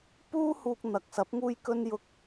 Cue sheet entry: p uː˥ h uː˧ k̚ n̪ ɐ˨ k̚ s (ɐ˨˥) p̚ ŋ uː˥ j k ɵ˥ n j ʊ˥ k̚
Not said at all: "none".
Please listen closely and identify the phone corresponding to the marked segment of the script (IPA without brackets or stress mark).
ɐ˨˥